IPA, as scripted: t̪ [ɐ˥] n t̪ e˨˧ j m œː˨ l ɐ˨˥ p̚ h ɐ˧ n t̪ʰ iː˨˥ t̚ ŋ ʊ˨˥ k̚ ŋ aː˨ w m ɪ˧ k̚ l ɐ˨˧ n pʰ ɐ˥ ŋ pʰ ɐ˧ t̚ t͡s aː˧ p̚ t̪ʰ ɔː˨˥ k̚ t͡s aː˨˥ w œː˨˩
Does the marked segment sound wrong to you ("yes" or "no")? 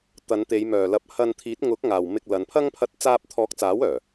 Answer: yes